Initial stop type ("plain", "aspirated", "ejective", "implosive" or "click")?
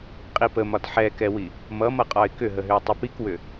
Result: ejective